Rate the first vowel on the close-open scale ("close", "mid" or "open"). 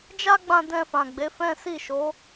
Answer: open